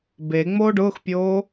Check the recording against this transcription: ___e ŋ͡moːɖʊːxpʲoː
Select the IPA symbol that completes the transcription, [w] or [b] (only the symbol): b